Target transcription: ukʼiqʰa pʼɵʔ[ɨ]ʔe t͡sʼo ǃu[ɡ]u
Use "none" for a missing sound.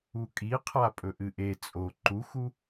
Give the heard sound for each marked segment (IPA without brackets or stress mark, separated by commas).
ɨ, x